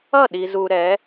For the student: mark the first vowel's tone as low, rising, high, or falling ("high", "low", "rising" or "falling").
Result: falling